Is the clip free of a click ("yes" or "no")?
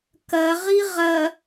yes